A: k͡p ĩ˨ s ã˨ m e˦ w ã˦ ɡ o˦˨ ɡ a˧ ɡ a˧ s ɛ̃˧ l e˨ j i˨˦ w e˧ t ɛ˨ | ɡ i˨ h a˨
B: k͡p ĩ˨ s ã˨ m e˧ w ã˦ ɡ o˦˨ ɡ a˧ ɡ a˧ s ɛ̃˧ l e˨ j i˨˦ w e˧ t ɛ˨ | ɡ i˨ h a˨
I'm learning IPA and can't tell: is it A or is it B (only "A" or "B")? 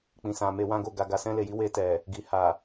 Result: B